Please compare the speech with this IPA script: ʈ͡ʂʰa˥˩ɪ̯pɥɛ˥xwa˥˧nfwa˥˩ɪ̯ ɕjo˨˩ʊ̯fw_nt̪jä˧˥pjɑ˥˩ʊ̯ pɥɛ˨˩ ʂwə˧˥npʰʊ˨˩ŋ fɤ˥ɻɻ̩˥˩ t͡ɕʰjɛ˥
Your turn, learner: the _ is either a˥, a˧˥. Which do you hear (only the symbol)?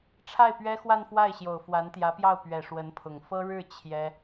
a˧˥